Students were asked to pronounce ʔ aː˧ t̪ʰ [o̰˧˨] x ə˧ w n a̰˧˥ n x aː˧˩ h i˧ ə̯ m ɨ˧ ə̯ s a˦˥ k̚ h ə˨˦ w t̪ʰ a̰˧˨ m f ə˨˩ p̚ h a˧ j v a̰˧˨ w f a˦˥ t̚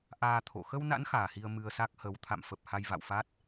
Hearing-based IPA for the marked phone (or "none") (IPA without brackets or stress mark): o̰˧˨